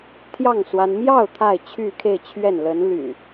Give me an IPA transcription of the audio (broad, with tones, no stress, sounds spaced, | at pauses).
t̪ʰ j ɑ˥˨ ŋ s w a˦ n m j ɑ˥˨ ʊ̯ t̪ʰ a˥˨ ɪ̯ t͡ɕʰ y˥˨ kʰ e˥˨ ɪ̯ t͡ɕʰ ɥ ɛ˥˨ n l ə˨˦ n l y̰˨˩